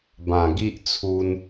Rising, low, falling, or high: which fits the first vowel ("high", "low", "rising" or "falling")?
low